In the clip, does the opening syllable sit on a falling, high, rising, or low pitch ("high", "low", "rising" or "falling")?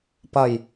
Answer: low